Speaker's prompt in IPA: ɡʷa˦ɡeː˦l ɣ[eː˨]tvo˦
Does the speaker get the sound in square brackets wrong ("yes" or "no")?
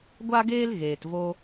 no